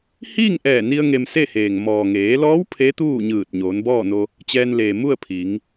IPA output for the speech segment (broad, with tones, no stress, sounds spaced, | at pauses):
h iː˥˨ ŋ ʔ ɛː˧˩ n i˧ ə̯ ŋ e˧ m s e˥˨ h eː˩ ŋ m ɔː˩ ŋ eː˩˧ l ɔː˧˥ w pʰ e˧˥ t̪ uː˥˨ ɲ ɯː˧˩ t̚ ɲ oː˩˧ n b ɔː˥˨ n o˧ | t͡ɕ ɛː˧ n l eː˩ m u˥˨ ə̯ pʰ i˩˧ ŋ